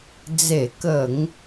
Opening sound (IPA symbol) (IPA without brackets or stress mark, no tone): d͡z